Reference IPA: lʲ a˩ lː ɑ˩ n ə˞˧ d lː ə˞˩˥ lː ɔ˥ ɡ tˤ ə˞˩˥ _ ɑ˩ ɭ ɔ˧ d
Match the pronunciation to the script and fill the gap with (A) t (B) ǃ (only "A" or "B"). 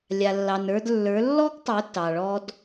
A